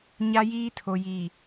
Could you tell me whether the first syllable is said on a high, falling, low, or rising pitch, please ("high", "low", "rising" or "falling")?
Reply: high